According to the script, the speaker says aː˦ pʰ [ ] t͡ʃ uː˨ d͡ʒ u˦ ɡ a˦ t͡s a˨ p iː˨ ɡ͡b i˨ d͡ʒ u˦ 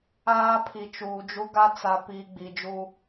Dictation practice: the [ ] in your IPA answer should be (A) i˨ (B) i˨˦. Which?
A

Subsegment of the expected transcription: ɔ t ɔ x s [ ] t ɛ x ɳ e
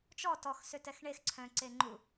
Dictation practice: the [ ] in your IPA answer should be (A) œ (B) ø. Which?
B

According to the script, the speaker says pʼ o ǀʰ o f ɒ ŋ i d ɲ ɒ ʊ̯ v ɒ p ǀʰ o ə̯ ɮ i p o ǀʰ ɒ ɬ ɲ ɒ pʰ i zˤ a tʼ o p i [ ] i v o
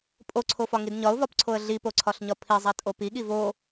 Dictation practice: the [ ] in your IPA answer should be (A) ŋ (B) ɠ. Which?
B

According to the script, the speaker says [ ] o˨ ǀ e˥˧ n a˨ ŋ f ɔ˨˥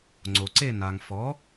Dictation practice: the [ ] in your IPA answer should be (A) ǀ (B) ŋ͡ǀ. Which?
B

